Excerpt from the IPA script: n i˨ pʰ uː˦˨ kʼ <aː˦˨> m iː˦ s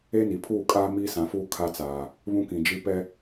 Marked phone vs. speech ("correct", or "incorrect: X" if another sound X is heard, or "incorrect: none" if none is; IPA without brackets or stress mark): incorrect: aː˦